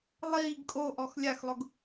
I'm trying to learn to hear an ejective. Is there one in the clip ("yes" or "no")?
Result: yes